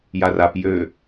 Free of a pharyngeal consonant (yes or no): yes